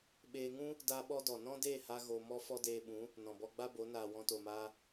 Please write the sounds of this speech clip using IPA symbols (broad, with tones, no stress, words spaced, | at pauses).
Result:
ɓeː˧ŋũ˦ | daː˧ɓɔ˧dɔ˨ nɔ̃˦deː˦˨ha˧ ɣo˧ mɔ˦ fɔ˦deː˧ɓũ˨˦ | nɔ̃˨bɔ˧ɡ͡ba˦bo˨˦ naː˨wɔ̃˧to˨maː˧